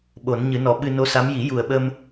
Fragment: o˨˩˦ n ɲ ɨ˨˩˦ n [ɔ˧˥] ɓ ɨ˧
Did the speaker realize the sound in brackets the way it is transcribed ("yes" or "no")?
no